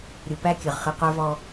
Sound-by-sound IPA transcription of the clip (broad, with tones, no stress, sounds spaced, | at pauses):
ɾʲ u˨ p æ˦ kʲ ɨ˨ ʁ χ ɨ˨ q ə˞˦ v ɔ˦